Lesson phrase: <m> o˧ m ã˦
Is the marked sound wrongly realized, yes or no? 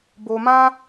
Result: yes